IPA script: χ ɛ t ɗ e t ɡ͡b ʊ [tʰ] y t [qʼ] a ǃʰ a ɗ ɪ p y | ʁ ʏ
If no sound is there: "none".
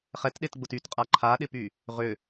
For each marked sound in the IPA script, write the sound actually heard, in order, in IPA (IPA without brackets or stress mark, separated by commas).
t, qʼ